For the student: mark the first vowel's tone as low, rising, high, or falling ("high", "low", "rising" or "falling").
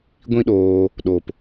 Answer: high